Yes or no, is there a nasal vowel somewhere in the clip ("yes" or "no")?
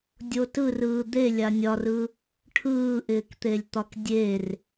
no